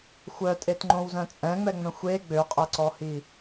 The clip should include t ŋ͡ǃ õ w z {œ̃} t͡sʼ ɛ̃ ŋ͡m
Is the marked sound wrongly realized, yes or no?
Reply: no